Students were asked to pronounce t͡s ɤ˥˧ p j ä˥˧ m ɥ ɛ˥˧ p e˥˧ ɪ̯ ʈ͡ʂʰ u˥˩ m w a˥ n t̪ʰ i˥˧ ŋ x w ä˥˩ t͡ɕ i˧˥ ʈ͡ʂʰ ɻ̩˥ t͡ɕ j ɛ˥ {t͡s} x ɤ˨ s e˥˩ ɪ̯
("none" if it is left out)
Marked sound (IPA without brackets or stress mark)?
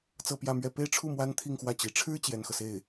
n